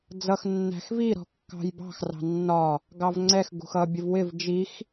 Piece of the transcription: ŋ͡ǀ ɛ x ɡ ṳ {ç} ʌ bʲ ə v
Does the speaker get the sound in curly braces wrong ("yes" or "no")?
yes